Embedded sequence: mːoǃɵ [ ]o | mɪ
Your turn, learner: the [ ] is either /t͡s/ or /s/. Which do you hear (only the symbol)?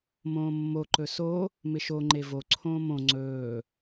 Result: s